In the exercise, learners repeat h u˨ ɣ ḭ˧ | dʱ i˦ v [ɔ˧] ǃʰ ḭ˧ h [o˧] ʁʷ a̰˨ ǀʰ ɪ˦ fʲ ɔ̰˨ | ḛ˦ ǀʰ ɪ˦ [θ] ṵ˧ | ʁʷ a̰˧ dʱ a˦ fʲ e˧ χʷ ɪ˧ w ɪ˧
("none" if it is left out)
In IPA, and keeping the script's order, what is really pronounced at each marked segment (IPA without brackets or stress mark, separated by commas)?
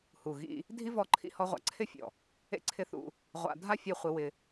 ɔ˧, ɔ˧, θ